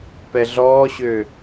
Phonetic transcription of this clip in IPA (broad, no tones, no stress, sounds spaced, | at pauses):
p ɛ ɮ ɔː ɕ ø